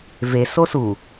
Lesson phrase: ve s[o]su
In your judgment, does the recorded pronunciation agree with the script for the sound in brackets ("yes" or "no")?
yes